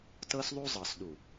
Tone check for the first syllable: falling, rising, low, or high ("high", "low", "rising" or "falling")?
high